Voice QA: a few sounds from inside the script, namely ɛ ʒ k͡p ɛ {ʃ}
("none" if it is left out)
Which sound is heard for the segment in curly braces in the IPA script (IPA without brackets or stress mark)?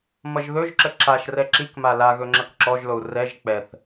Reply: θ